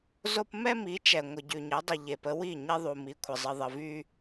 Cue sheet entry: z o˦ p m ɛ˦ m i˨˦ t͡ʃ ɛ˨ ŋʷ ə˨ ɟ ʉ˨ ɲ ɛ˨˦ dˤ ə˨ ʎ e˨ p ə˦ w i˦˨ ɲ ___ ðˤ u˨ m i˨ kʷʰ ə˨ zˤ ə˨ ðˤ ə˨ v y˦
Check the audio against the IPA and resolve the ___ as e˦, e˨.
e˦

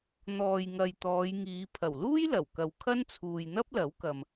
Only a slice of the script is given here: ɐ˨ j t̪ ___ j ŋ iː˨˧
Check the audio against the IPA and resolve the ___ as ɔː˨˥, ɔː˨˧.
ɔː˨˧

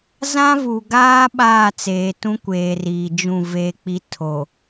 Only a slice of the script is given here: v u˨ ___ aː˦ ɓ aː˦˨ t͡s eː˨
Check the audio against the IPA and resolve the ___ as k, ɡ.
ɡ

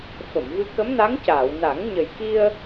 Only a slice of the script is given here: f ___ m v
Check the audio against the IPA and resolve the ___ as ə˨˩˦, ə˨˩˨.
ə˨˩˨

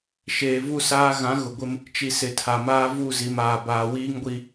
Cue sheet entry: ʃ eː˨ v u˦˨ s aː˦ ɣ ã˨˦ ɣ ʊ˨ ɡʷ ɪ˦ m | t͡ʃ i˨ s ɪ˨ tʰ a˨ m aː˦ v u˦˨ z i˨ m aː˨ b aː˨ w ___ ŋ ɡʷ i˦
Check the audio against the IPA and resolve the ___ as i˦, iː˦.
iː˦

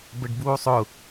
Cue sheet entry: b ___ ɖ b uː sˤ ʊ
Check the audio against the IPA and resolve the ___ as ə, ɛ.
ə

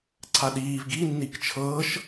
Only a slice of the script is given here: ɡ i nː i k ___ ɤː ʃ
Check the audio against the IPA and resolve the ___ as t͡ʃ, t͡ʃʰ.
t͡ʃʰ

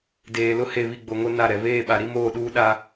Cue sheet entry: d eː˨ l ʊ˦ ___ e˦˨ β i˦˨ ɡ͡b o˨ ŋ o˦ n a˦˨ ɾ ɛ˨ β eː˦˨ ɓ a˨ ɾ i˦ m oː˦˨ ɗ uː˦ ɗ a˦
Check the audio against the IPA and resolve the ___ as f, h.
h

